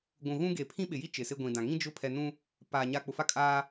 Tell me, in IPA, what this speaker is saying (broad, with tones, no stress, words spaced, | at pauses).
ɡʷũ˨ɣũ˦ɡe˨ pʰĩ˦ɓɪ˨ji˦ t͡ʃɪ˨sɪ˦ɡʷĩ˨dã˨ ŋĩ˦d͡ʒʊ˦˨pʰɛ˨nũ˦ | paː˨ ɲa˨ k͡pʊ˨fa˦kʼaː˦